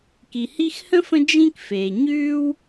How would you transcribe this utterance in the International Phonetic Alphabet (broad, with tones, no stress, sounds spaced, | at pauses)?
k i˩ h i˦ x h ə̃˥ f ə̃˦ d͡ʒ ĩ˥ k f eː˩ ɲ ʉː˥ w